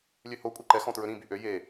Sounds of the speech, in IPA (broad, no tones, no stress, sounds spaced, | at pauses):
lʲ ø h o kʷʼ ɛ ǃ ɛ x ɔ̃ t ɹ ɵ ɾ ĩ b y ʔ ø j e